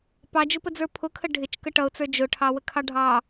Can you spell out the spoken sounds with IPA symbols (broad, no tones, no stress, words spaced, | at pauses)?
pɑd͡ʒʊpəd͡zə˞ pʰʊkʰə ɖʱɪt͡ʃkə ʈʌʊ̯t͡sə˞ d͡ʒʊʈʰɑwəkʰɑ ɖʱɑ